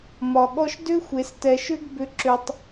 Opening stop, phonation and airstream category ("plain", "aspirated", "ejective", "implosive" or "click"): implosive